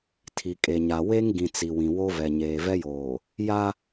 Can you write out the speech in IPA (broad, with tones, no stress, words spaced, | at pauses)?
tʰi˨kʼe˨ɲa˨ we˦ŋɡĩ˨ t͡si˨wĩ˨wo˦ vɛ˨ɲeː˨vɛ˦joː˨ | ja˦